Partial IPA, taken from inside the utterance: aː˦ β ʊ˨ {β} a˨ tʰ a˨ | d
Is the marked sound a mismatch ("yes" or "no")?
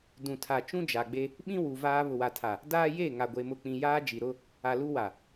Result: yes